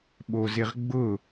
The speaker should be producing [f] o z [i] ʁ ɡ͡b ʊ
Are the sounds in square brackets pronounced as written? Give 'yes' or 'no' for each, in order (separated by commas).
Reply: no, no